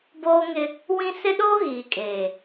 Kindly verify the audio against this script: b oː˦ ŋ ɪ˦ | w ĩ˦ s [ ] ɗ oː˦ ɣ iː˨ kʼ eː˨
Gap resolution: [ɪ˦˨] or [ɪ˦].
ɪ˦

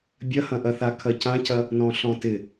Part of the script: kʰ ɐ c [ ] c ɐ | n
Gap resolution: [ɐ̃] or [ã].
ã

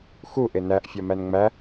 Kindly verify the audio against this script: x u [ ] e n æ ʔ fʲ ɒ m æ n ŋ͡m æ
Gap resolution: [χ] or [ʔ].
ʔ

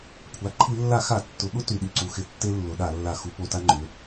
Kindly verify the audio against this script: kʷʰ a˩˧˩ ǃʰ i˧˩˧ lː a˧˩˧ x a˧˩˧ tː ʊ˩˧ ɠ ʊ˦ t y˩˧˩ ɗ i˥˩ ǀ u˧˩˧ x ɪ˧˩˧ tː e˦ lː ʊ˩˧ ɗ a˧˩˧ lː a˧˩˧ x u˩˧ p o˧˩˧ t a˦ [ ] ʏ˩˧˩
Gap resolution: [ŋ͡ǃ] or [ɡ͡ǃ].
ŋ͡ǃ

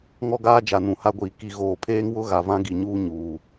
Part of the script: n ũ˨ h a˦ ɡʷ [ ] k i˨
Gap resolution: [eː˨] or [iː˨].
iː˨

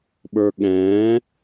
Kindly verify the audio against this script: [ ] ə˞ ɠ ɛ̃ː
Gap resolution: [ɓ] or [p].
ɓ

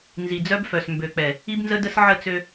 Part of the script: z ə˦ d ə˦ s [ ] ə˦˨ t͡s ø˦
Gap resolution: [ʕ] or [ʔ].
ʕ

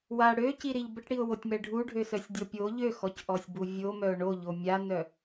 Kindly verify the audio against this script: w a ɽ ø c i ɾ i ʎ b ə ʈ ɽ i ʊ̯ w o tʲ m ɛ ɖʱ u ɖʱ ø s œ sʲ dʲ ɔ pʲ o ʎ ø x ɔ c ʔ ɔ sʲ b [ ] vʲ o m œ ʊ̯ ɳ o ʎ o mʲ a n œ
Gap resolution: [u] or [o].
u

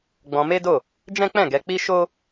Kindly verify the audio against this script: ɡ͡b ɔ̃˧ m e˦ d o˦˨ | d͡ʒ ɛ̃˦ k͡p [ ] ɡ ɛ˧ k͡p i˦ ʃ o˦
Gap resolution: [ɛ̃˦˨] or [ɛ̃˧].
ɛ̃˦˨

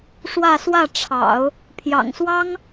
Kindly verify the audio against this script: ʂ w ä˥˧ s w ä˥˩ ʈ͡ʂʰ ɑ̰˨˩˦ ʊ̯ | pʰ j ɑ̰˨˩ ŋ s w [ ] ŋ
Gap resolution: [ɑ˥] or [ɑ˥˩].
ɑ˥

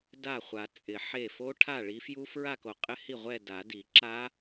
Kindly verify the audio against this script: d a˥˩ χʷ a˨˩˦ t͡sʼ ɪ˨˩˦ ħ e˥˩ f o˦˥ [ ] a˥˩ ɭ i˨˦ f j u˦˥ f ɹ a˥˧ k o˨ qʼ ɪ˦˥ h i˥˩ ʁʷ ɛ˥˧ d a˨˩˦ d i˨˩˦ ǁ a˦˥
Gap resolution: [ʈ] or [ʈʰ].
ʈʰ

